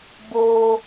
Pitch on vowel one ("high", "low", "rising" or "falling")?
high